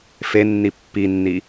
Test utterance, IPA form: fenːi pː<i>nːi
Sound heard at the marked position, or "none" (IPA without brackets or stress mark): i